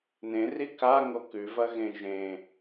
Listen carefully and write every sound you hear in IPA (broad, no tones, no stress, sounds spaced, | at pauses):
n ẽ r i k a ŋ o k ʉ v ɐ ɣ ẽ ʒ ẽ